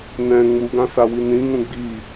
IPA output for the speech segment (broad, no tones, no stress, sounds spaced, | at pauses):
n ɛ̃ ŋ͡m u ɡ ã s a w i n ĩ ŋ ũ ɡ͡b i